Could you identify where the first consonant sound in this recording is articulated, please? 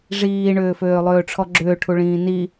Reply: retroflex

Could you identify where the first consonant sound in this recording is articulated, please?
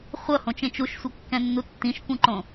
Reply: uvular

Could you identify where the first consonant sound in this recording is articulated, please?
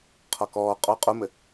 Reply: uvular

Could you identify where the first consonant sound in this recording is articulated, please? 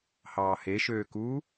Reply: glottal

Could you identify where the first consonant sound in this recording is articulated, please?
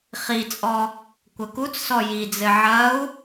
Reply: uvular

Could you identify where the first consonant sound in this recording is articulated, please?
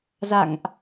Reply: alveolar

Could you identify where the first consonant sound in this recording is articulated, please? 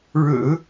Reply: retroflex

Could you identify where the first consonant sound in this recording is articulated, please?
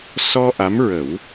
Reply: alveolar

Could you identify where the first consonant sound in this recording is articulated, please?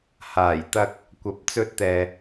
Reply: glottal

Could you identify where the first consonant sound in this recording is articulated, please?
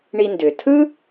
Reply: retroflex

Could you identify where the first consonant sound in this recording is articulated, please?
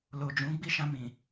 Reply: alveolar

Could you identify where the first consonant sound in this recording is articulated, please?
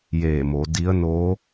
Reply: palatal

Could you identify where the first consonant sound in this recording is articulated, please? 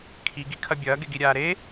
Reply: velar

